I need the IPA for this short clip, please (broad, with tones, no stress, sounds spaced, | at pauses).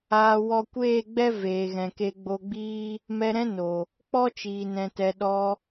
aː˨ w ɔ˧ kʷ eː˦˨ ɡ͡b ɛ˦ v eː˨ ɣ ɛ̃˨ k e˧ ɡ͡b o˧ ɡ͡b iː˦ | m ɛ˧ ɾ ɛ̃˦ n o˨ | k͡p ɔ˦ t͡ʃ iː˨ n ɛ̃˨ t ɛ˨ ɗ ɔ˧